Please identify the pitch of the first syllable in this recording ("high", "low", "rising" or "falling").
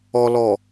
low